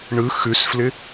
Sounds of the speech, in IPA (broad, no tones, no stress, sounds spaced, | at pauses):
ɳ ɯ x ʉ s f l ɪ